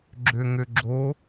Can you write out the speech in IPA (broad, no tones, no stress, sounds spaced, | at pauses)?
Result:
ɡ͡ǁ ø ŋ ø ɡ͡ǁ o